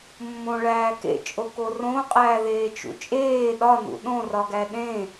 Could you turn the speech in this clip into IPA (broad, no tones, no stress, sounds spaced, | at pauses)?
mː õ ɭ æː k ḛ t͡ʃʼ o k o r õ qʼ æː ð eː t͡ʃ ṵ t͡ʃʼ eː ɗ ɒ n ṵ ɗ õ r ɒ ɡ æ ɗ ẽ